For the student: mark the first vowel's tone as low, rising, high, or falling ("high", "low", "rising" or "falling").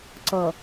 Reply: low